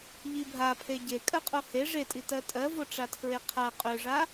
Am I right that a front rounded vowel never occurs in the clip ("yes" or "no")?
no